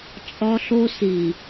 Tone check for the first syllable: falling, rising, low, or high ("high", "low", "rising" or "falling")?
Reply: high